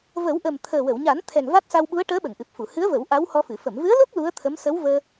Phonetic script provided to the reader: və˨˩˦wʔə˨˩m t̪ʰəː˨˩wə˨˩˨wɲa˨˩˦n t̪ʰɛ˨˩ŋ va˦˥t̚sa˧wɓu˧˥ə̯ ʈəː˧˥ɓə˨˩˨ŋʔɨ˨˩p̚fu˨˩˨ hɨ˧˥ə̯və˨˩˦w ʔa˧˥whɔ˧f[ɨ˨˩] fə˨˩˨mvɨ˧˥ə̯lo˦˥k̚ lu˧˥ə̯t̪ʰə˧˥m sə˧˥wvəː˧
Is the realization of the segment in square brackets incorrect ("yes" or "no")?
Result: yes